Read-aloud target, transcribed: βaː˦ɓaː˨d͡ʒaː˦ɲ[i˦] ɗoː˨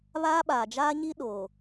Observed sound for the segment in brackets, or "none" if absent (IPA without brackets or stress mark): i˦